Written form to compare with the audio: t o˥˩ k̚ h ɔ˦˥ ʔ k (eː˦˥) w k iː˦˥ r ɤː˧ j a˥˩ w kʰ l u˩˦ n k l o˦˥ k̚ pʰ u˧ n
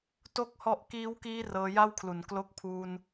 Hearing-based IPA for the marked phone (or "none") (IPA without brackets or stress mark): iː˦˥